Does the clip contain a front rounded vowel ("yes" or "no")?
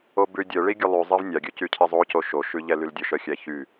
yes